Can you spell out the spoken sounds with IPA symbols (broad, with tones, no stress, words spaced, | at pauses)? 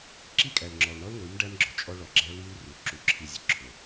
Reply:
ǁi˦˨kʼæ˨lŋ͡ǁɔ˨lɳɔ˦l ŋʷi˨˦mɖæ˦mɡ͡ǁʊ˨ t͡ʃʼɔ˦ɭɔ˨ɡ͡ǁæ˦ li˦l ru˨ ǁu˦ǁʰi˦zʲʊ˨ ǁʰʊ˨